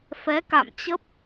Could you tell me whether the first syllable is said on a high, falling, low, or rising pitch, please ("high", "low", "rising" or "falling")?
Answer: rising